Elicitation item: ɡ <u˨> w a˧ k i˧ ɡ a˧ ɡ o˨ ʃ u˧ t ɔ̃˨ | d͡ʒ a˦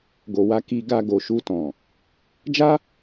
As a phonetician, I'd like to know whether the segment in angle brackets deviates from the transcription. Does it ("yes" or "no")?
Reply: yes